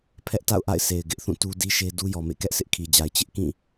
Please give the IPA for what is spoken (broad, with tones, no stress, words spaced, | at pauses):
pʰɛ˦ʔta̰˦˨ʊ̯ʔa̰˦˨ɪ̯ se˨ɪ̯ ɡɪ˦ʔθũ˦˨ tu˦di˦ʃe˦ du˦jɔ˨mḛ˦˨ kɛ˦ʔsɪ˦ʔkʰi˨d͡ʑa˨ɪ̯ t͡ɕɪ˦ʔkĩ˦˨